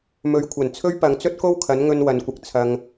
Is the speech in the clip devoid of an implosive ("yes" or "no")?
yes